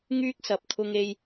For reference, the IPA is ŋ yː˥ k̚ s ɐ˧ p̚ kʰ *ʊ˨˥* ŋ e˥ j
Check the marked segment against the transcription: incorrect: ʊ˥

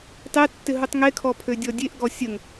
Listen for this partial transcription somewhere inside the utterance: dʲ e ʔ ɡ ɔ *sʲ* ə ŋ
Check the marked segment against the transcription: correct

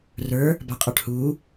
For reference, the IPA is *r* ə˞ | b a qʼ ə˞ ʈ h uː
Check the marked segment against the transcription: correct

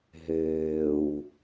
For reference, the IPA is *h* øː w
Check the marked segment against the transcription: incorrect: ɦ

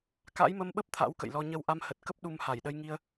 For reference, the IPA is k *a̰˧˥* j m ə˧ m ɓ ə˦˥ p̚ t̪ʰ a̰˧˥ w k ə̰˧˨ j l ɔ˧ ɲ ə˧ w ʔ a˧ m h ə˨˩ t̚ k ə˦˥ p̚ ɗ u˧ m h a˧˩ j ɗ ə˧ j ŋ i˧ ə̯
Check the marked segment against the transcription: correct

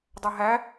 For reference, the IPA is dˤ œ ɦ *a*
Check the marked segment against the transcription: incorrect: æ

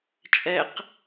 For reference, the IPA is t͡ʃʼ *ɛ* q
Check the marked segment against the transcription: correct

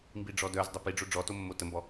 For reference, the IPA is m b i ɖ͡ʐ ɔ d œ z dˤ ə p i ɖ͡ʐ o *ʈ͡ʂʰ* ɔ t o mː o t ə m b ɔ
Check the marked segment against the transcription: incorrect: ɖ͡ʐ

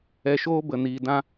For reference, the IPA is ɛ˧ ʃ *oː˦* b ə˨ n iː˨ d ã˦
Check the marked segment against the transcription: correct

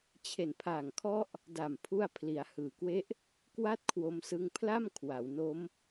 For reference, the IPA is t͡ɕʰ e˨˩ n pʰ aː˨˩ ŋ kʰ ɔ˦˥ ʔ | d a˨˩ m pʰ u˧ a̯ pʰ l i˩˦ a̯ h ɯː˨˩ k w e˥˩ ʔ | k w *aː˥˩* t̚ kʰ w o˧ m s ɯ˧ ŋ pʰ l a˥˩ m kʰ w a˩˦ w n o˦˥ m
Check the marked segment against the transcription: incorrect: a˥˩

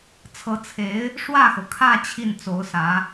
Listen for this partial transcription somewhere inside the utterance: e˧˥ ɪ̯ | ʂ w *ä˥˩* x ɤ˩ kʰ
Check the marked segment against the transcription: correct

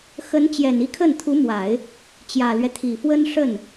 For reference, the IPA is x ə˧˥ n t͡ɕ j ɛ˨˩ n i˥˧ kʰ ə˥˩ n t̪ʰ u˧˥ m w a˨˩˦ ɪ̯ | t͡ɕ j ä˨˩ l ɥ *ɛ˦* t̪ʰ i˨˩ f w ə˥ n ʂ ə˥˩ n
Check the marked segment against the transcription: correct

